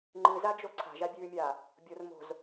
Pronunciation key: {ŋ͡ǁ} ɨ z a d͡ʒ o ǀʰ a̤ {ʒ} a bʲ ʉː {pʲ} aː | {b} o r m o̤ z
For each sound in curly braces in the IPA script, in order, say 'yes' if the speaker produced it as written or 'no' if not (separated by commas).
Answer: no, yes, no, no